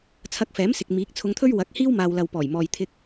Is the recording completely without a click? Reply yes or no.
yes